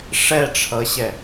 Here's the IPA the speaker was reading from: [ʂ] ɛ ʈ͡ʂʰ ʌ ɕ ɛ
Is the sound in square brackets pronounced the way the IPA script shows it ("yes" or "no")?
yes